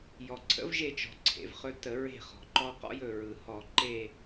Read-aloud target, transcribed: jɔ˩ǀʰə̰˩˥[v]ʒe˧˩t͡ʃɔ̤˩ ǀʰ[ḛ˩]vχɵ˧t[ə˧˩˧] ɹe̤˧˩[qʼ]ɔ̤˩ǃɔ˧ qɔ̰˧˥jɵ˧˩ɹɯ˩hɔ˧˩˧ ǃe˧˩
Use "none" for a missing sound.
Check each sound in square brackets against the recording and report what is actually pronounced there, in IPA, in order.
v, ḛ˩, ə˧˩˧, χ

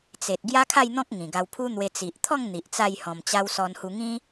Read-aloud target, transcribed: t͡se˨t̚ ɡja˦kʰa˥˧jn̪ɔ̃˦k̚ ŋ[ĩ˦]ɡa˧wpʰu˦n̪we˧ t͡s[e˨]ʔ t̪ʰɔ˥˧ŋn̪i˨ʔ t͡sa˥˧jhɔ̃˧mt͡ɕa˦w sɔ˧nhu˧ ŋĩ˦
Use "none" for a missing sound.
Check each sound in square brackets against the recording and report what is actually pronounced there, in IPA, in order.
ĩ˨˩, i˨

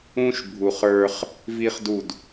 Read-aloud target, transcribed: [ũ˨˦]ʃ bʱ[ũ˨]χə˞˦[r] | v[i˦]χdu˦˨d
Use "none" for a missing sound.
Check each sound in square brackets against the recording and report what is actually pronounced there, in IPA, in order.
ũ˦, u˨, χ, i˦

